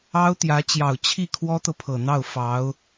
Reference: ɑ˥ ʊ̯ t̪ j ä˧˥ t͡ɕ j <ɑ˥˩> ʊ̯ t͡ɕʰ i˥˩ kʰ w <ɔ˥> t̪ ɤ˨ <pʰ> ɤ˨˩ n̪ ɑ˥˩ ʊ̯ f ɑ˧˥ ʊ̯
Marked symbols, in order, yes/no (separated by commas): no, yes, yes